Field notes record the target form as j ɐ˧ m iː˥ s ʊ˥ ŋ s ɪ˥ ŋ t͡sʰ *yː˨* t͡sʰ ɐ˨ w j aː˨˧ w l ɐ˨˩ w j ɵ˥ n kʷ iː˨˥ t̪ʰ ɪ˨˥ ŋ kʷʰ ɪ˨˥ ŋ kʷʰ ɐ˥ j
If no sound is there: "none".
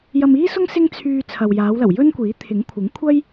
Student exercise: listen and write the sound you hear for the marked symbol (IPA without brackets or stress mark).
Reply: yː˧